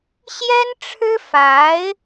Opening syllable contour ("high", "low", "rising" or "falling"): high